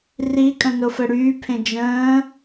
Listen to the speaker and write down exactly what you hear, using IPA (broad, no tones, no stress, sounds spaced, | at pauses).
r i kʼ ə̃ n o f ə ɽ yː pʰ ẽ d͡ʒ ə̃ː